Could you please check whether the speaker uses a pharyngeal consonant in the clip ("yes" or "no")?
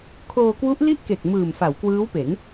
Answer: no